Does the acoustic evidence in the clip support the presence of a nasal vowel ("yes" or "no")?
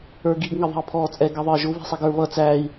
no